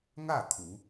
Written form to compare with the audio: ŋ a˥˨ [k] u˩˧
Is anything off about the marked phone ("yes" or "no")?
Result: yes